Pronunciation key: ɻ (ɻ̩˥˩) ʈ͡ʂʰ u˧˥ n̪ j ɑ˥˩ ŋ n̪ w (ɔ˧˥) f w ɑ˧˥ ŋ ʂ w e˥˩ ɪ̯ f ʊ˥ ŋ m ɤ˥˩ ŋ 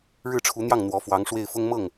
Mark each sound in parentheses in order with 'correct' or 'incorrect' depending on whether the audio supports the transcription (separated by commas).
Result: correct, correct